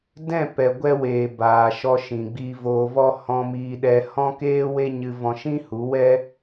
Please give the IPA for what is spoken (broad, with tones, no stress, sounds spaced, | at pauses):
d ɛ̃˦˨ p ɛ˨ ɡʷ ɛ˧ w eː˨ b aː˨ ʃ ɔ˧ ʃ ĩ˨ ɡ͡b iː˧ v oː˧ v ɔ˦ h ɔ̃˧ m iː˧ ɗ ɛ˧ h ɔ̃˦ k eː˦ w e˦ ɲ ɨ˧ v ɔ̃˧ ʃ ĩ˦ h u˨˦ w ɛ˦